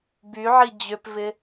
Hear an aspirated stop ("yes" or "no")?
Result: no